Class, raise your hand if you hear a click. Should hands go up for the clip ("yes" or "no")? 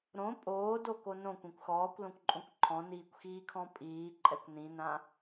yes